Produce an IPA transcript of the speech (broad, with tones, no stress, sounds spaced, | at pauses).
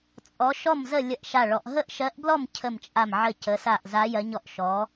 t͡sʼ ɔ˧˥ ʃ ɔ˥˨ m z ə˥˨ lʲ ə˥˨ ʔ ʃ a˥˨ ɭ ɔ˧˥ ʔ ɦ ə˥˨ ʔ ʃ ɜ˧˥ ʔ b l ɔ˥˨ m cʰ ə˥˨ m t͡ʃʼ a˥˨ m ʕ ə˥˨ c ə˧˥ s a˥˨ ʔ z a˧˥ j ɜ˧˥ ɲ ɔ˥˨ ʔ ʃ ɔ˧˥